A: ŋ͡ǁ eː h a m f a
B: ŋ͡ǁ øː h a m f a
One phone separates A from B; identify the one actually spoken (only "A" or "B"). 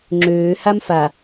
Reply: B